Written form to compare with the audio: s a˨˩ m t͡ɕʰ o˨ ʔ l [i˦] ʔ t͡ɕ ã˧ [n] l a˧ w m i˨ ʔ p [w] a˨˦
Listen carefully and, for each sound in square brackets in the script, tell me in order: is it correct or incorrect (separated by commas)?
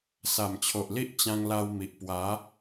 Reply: correct, incorrect, correct